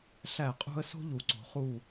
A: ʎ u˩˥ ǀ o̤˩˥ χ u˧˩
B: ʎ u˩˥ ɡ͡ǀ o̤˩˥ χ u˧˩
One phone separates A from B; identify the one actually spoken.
A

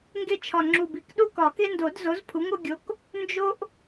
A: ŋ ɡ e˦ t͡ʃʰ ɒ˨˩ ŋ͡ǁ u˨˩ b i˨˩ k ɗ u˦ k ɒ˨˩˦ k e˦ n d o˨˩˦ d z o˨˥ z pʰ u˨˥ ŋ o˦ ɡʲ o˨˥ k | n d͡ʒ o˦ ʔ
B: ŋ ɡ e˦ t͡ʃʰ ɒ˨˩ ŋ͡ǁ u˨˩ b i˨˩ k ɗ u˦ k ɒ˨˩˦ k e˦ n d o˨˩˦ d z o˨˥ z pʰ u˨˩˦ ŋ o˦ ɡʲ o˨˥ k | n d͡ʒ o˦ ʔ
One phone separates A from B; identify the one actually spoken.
A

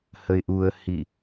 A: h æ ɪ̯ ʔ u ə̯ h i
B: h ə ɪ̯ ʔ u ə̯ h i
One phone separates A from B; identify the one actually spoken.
B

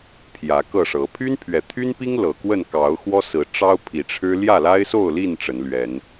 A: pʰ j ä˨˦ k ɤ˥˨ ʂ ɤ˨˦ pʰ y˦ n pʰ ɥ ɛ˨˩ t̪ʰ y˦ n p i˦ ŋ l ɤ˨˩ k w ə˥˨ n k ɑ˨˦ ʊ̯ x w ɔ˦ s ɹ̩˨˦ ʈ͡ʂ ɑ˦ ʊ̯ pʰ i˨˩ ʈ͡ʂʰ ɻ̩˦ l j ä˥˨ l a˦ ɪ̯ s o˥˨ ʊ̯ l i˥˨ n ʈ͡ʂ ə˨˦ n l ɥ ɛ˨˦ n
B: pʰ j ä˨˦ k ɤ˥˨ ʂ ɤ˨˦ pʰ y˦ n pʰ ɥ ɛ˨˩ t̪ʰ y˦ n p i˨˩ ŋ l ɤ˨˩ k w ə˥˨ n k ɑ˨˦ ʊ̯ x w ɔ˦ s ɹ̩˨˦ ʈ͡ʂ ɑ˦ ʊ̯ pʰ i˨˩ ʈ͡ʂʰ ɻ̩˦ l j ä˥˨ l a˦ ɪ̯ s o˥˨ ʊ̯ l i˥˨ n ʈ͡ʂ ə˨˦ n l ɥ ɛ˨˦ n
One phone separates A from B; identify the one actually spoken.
A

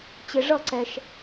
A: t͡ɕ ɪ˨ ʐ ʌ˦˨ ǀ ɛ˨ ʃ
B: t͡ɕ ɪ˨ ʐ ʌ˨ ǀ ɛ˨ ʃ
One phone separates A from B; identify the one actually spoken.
A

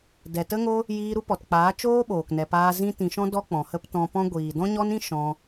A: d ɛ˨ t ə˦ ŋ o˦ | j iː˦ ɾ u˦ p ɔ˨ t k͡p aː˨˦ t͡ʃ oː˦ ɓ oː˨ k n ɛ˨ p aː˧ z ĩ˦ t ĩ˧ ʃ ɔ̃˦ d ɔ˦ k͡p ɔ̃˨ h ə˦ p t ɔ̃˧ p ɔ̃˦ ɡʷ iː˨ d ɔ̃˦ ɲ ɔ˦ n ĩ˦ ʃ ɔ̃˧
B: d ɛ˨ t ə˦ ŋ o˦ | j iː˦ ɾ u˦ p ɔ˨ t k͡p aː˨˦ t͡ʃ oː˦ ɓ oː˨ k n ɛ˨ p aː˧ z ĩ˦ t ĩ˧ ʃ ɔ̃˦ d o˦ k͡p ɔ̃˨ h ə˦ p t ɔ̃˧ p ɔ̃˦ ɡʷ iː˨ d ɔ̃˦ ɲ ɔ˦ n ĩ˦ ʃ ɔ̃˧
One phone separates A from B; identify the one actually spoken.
A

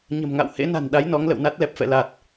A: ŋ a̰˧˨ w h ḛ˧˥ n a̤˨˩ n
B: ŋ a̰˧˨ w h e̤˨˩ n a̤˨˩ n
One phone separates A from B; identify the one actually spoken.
A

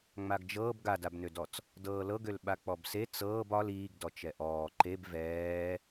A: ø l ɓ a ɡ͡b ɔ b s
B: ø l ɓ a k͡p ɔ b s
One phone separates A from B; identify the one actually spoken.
B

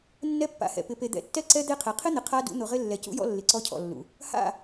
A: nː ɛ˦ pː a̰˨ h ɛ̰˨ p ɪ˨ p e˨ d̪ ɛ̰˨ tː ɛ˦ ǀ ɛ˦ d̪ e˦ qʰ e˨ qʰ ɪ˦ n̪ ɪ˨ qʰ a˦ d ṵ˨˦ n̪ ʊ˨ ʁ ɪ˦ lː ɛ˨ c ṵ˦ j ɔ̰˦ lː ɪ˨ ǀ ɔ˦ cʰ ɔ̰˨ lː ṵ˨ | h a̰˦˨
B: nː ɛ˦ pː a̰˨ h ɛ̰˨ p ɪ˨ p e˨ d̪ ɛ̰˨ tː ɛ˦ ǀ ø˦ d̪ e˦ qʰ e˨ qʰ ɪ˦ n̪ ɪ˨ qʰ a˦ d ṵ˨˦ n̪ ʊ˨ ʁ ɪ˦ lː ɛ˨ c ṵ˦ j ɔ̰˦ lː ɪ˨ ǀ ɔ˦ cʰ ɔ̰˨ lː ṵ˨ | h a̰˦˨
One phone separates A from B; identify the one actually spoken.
A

